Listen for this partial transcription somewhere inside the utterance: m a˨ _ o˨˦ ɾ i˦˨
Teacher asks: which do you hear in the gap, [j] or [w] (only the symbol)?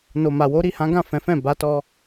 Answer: w